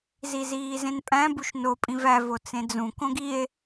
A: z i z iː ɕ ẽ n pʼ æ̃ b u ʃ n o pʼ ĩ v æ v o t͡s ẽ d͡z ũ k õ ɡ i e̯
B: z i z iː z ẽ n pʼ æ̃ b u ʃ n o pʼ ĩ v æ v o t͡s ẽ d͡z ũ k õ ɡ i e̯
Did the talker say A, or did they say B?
B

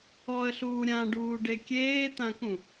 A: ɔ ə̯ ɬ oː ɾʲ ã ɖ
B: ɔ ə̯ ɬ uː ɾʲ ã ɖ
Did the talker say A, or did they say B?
B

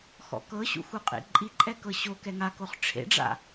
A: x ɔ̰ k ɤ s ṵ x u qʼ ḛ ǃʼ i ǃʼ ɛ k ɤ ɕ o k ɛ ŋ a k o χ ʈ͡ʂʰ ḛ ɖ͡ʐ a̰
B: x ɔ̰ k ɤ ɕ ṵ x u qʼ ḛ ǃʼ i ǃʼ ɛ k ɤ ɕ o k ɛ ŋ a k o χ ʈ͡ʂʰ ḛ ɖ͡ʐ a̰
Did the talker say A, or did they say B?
B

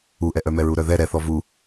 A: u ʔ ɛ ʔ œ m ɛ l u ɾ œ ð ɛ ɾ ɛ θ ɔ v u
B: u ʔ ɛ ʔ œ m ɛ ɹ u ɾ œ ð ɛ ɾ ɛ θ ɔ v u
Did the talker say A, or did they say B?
B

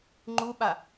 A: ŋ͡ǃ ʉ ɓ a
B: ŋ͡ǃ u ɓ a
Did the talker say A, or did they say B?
B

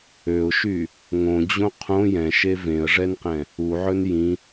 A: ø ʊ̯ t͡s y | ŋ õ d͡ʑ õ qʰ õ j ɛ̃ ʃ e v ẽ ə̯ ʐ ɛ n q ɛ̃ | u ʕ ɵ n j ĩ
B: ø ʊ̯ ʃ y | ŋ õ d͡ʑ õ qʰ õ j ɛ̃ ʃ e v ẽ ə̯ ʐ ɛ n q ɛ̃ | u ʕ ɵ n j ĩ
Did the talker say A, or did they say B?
B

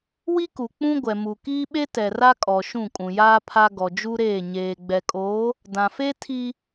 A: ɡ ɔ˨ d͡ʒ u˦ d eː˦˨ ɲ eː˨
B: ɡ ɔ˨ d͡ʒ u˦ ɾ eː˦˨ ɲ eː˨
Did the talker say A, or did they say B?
B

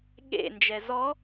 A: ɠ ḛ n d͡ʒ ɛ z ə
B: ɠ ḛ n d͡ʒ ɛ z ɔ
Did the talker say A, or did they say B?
B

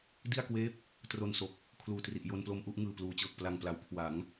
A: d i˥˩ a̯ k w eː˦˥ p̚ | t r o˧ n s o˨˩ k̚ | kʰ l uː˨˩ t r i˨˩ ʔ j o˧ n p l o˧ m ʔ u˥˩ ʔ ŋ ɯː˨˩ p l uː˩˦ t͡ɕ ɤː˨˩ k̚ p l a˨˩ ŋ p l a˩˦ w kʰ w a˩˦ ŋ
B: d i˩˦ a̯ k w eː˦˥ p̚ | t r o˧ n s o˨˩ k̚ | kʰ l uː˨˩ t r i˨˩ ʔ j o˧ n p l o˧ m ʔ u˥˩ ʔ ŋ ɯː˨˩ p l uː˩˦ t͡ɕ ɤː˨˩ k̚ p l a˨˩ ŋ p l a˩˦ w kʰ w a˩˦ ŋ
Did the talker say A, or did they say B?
A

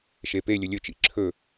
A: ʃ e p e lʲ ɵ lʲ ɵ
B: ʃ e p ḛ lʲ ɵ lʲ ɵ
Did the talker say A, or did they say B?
A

